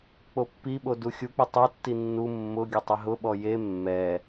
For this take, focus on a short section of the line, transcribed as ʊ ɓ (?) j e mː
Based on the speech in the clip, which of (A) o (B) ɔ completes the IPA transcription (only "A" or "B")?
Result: B